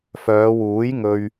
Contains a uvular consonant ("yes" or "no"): no